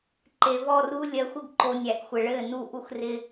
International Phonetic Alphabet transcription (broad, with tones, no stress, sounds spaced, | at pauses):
ǃ e˨ v ɔ˦˨ r u˦ lʲ ɜ˨ xʷ ɪ˦ ɡ ǃ o˨ nʲ æ˨ ʔ xʷ ɘ˨ ɭ ɘː˦˨ n u˦˨ ʔ u˦ x r ɪ˦